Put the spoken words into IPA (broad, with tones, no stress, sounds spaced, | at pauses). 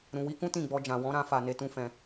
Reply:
ɾ ũ˨ w i˧ k ũ˦ t ĩ˦˨ ɡ͡b ɔ˧ d͡ʒ ã˨ w ɔ̃˨˦ ɾ ã˧ f a˧ n e˧ t ũ˦ f ɛ̃˧